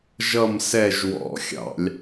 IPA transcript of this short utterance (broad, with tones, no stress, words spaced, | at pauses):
ʒʌ˦˨msɛ˦˨ʒ wɔ̰˧˩˧xʲɑ̰˧˩˧lʲ